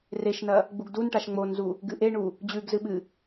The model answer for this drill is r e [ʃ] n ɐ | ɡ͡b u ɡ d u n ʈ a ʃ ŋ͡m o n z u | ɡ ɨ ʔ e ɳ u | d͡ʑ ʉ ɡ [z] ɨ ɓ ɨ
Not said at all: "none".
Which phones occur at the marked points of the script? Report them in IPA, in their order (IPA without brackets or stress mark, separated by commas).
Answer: ʃ, z